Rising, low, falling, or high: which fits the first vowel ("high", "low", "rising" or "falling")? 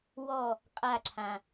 falling